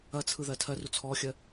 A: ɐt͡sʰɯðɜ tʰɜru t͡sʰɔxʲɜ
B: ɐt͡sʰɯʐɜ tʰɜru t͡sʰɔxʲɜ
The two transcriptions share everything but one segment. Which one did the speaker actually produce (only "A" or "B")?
A